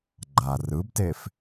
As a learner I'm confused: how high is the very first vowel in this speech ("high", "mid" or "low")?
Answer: low